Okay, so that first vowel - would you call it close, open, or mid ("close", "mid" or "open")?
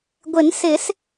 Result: close